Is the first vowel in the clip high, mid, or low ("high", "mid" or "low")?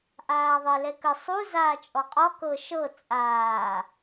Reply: low